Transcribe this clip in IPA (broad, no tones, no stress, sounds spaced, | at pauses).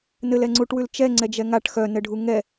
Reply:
n ɘ l ɛ ŋ͡ǀ u ʈ w ʉ l t͡ʃ ɛ ŋ͡ǀ ɛ d͡ʒ ɛ ŋ a ʈ x œ n ɘ ɖʱ u ŋ ɛ